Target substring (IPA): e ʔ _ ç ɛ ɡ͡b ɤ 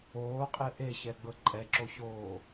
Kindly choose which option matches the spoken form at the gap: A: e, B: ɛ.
A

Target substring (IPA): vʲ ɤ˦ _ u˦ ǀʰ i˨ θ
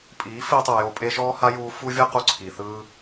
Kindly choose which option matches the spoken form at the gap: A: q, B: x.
A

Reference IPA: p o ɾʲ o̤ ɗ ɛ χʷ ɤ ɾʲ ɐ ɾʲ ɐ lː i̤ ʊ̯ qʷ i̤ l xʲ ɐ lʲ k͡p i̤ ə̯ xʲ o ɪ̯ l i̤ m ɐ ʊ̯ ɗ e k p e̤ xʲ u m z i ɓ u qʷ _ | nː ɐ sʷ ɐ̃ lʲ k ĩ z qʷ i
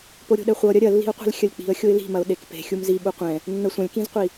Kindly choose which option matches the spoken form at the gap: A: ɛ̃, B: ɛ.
A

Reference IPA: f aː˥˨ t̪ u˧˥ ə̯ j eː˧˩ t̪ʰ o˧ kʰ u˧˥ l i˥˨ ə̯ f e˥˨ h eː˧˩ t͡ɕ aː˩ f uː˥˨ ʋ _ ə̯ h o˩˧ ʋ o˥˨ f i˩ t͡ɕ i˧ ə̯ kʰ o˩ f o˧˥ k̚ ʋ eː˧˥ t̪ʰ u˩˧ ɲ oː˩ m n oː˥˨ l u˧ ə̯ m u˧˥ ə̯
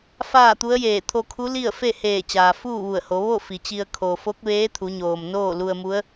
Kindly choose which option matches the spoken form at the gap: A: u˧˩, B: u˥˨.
A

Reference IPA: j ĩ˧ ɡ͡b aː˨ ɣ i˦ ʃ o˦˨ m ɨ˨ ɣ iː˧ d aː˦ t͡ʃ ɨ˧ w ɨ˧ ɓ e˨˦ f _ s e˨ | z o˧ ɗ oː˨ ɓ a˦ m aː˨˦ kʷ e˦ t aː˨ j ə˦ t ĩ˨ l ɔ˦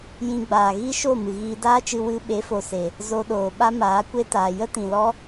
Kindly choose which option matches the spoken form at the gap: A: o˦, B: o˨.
B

